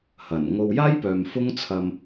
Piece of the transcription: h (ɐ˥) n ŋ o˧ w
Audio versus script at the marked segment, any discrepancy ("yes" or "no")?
yes